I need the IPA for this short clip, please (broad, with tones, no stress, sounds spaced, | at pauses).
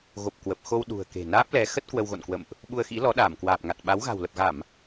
ɣ o˨˩ p̚ k w ə˨˩ p̚ x o˧ w ɗ ṳ˨˩ ə̯ k e̤˨˩ n aː˦˥ p̚ l ɛ˨˦ x ə˦˥ t̚ k w ə˧ w ɣ o̰˧˨ n k w ə̰˧˨ m ʔ | ɓ u˧ ə̯ x ḭ˧˥ l ɔ˨˦ ɗ aː˧˩ m k w aː˨˩ p̚ ŋ a˨˩ t̚ ɓ a˨˦ w ɣ a̤˨˩ w l ə˨˩ p̚ ɣ a˧˩˨ m